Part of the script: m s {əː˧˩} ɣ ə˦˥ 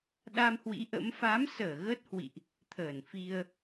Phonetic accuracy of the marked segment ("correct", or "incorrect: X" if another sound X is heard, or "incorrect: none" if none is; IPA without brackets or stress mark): correct